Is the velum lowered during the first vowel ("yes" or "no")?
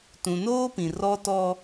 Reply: yes